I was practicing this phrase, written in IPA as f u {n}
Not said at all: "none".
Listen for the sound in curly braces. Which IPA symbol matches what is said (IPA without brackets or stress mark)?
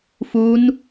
n